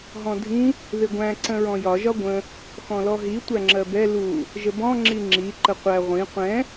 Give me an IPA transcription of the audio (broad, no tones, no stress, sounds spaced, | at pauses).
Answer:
ɦ ɔ̃ dʱ ĩ | ð ɪ ɡʷ æ̃ ǀ ə̃ ɹ ɔ̃ j ɒ ʒ ɒ ɡʷ ə̃ | x ɔ̃ l ɔ ɦ i tʷ æ ŋ͡ǁ ɜ b ɛ l u | ʒ ə b ɔ̃ ŋ͡ǁ i ŋ͡ǁ i ǃ ə qʷ æ ʁʷ ĩ qʷ ɛ̃